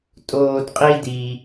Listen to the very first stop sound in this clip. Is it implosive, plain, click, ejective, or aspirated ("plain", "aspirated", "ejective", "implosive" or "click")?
ejective